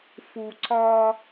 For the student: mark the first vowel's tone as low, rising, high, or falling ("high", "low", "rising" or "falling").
low